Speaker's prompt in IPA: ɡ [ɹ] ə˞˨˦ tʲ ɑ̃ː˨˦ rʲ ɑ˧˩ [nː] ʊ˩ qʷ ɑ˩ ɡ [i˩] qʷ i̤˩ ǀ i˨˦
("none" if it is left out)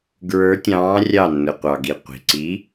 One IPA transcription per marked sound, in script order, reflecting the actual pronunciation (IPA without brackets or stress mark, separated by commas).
ɹ, nː, i˩